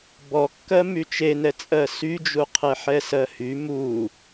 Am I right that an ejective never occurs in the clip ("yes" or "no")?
no